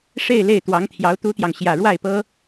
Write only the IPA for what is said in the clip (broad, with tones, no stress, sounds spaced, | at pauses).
ʂ e˥˧ ɪ̯ l e˥˩ ɪ̯ t̪ w ɑ˧˥ ŋ t̪ʰ j ɑ˧˥ ʊ̯ t̪ u˥ t̪ j ɑ˨ ŋ ɕ j ä˨˩ ɻ w a˥˩ ɪ̯ p ɤ˥